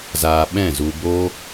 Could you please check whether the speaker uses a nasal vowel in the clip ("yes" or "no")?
yes